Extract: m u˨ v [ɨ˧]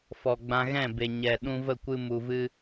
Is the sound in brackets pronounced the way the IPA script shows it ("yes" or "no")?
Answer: yes